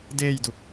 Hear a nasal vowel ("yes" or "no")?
no